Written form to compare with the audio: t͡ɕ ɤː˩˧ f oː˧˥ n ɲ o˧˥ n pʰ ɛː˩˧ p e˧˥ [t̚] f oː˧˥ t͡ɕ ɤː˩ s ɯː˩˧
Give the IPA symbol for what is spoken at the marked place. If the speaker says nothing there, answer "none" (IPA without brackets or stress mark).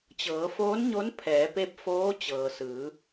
p̚